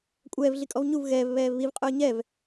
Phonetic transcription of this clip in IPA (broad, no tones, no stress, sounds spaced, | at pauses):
kʷʼ ɛː v ɮ i kʼ ɔ v ɲ u v ɣ ɛː v β ɛː v β i v qʼ ʊː ɲ ɛ v